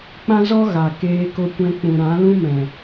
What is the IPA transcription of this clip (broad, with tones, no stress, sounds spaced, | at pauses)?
k͡p ã˦ z ɔ˦ ɣ a˨ k eː˧ k o˧ kʷ ɛ̃˧ k͡p ũ˨ ɾ ã˨˦ l ũ˦ m ɛ̃˨